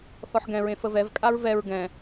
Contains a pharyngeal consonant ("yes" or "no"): yes